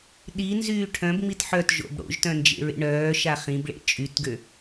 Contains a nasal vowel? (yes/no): yes